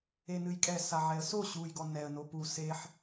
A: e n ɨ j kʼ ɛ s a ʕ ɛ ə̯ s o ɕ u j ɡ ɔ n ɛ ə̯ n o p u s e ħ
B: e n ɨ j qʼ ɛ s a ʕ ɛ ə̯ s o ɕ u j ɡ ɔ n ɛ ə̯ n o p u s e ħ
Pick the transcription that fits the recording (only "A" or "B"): A